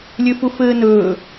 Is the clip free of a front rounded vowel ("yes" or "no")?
no